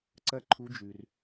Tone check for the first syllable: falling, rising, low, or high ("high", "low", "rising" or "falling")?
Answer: high